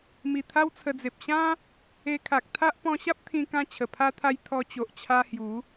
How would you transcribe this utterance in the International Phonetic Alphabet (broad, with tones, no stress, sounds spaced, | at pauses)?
m i˨˩ t̪ʰ a˦ w t͡sʰ ə˧ d͡z e˨ p̚ ɕ ã˦ | e˧ kʰ a˨ k̚ t̪ʰ a˦ ʔ p ɔ̃˧ ɕ a˦ p̚ t̪ʰ ĩ˧ k ã˧ t͡ɕʰ ə˨˩ pʰ a˦ t̪ʰ a˦ j t̪ʰ ɔ˧ t͡ɕ o˨ ʔ t͡ɕʰ a˧ h j u˨˦